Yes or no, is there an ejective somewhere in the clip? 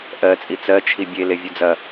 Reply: yes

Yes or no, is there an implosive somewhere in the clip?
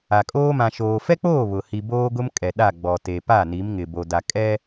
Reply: yes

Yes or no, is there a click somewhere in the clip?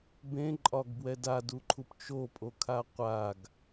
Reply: yes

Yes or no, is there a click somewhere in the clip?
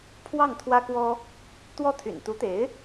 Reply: no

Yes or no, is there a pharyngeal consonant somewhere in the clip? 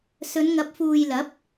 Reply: no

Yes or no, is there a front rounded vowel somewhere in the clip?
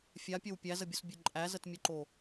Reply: no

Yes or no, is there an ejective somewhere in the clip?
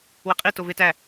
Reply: yes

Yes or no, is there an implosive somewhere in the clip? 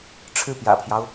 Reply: no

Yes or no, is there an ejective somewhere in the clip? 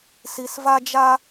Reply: no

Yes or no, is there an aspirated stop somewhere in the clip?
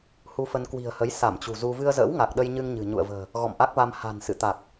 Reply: no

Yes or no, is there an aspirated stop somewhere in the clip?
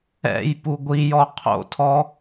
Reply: yes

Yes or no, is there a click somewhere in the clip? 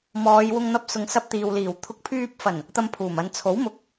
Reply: no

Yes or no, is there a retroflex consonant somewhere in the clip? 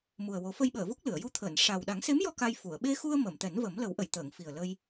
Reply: yes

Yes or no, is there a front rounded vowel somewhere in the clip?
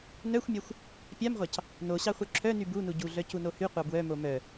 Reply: yes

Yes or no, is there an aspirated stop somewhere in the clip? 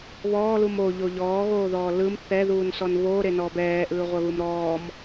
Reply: no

